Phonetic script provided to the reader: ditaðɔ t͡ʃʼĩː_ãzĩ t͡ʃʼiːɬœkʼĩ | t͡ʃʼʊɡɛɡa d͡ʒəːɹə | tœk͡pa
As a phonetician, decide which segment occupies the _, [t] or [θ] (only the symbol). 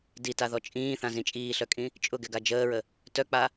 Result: θ